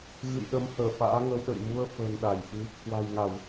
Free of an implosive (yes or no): no